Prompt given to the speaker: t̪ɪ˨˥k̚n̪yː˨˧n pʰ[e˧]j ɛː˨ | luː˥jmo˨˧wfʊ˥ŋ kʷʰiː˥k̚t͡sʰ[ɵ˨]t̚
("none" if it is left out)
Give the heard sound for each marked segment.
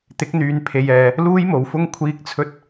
e˧, ɵ˥

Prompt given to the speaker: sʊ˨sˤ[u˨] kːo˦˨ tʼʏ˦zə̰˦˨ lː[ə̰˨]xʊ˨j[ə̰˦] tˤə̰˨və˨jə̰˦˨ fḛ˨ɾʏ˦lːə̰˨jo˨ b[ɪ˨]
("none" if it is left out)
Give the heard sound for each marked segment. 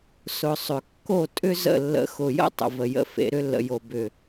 ʏ˨, ə̰˨, ə̰˦, ʏ˨

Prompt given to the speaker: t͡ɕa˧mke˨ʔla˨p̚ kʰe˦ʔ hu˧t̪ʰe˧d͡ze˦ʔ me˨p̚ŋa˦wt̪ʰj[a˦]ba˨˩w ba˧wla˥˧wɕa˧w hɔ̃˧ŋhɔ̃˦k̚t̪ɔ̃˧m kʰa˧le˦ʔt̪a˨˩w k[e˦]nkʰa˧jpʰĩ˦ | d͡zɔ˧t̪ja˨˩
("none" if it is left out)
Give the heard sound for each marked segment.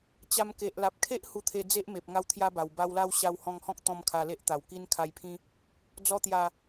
a˦, i˦

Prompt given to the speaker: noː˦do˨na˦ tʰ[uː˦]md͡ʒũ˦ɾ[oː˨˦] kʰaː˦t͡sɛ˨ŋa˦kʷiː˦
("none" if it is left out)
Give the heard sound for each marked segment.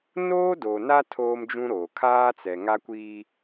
oː˦, oː˨

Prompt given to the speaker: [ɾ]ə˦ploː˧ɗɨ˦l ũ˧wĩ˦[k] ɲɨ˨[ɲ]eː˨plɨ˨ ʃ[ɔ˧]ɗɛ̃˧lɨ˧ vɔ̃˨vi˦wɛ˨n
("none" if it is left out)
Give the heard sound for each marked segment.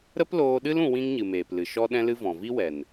ɾ, ŋ, m, ɔ˧

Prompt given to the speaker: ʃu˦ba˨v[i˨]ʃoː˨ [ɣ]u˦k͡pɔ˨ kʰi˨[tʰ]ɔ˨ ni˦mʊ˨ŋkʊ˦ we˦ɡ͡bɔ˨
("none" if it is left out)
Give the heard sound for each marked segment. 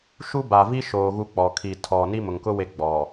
i˦, ɣ, tʰ

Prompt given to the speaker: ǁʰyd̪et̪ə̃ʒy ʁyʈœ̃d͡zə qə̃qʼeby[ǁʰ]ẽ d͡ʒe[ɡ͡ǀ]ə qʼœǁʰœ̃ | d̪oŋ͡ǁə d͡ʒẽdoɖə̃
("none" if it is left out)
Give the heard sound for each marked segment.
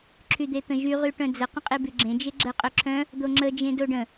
ɡ͡ǁ, ɡ͡ǁ

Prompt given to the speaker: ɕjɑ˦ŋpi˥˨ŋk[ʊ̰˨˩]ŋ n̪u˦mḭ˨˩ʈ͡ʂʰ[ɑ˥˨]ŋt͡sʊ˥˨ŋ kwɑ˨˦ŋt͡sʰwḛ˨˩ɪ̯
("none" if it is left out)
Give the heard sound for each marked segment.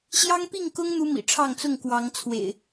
ʊ˦, ɑ˥˨

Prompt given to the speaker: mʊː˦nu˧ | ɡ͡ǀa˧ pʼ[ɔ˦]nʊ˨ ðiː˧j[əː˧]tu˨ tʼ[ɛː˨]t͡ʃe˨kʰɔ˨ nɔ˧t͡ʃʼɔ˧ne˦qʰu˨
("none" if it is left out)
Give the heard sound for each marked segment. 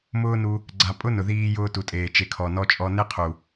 ʊ˦, ʊː˧, eː˨

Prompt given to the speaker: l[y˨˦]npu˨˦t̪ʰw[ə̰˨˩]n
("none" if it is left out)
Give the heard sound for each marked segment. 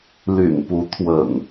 y̰˨˩, ə̰˨˩

